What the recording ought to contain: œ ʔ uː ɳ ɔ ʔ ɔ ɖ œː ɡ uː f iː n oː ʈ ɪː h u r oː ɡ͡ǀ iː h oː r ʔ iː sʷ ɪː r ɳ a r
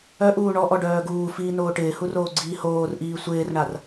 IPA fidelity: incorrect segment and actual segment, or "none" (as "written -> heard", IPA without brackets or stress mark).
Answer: none